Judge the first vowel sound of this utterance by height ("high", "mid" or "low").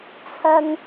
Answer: low